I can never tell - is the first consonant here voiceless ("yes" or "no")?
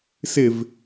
yes